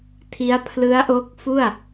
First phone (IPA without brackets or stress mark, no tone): tʰ